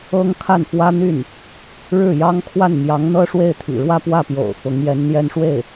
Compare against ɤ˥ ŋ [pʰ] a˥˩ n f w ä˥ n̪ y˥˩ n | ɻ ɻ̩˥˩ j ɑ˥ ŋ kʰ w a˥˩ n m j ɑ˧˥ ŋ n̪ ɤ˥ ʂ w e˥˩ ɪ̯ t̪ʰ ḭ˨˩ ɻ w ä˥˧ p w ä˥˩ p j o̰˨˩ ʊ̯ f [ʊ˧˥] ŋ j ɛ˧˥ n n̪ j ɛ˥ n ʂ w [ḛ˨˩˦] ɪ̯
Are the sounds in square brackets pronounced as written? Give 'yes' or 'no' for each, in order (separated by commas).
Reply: no, yes, no